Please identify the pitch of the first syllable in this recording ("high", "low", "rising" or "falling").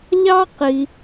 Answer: high